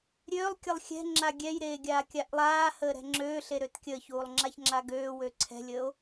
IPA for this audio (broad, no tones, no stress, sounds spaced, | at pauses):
ɾʲ øː lˠ kʲ ɘ lˠ xʲ ɛ̤ ŋ͡ǁ a ɡʲ ɛ j ɾ eː ɡʲ aː kʲ a ʔ lˠ aː h əː ɾ ɛ̤ ŋ͡ǁ øː ɬ e ɾ ø t kʲ ə ç uː lˠ ŋ͡ǁ a ç ŋ͡ǁ a ɡ øː w ø ǀʰ ɛ̤ lʲ əː o̯